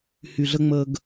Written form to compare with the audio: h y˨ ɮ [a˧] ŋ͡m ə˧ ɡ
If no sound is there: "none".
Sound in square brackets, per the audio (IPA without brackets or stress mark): ə˧